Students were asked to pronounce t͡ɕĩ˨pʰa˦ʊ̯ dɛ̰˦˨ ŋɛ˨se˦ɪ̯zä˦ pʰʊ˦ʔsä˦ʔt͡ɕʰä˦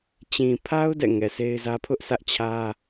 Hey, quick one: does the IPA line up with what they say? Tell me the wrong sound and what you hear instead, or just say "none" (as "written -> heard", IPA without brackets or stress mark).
none